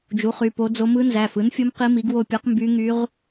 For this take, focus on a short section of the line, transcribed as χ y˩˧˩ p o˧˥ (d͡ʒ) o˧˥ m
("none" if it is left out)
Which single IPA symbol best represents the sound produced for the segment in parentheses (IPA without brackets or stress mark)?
d͡z